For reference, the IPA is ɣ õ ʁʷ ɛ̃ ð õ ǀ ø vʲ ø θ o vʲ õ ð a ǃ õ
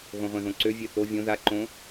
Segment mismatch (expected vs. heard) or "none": none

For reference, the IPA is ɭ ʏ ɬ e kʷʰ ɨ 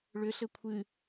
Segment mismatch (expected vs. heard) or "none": e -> ɘ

